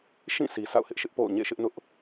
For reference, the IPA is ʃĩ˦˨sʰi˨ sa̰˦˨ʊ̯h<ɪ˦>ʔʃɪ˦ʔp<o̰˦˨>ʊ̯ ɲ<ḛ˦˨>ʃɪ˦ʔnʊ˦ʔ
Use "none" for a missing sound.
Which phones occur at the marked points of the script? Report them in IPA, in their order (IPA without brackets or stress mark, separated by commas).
ɪ˦, o̰˦˨, ḛ˦˨